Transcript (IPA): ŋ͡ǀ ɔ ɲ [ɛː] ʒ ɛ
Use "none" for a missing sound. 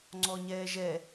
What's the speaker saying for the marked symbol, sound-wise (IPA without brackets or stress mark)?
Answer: ɛː